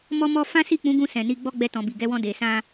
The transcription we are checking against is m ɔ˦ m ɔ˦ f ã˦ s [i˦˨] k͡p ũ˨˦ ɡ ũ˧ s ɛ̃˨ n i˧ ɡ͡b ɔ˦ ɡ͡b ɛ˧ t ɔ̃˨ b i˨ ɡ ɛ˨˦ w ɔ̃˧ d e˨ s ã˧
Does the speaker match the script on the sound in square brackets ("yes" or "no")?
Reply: yes